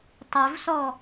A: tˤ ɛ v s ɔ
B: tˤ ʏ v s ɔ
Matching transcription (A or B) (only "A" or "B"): B